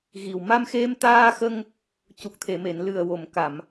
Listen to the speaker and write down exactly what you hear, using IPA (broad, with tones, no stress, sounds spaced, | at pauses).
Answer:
ɣ i˨˩ w m a˧ m x e˧ m t̪ aː˧ x ə˧ ŋ | c u˨˩ k̚ t̪ʰ e˨˩˨ m e˨˩˨ n l ɨ˨˩ ə̯ w o˨˩˨ m k a˨˩˨ m